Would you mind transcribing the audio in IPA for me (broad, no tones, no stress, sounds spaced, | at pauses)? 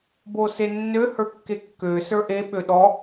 b o s e nː ø h ə˞ kː e kː ø s ə˞ ʔ e ɓ ø ɗ ɔ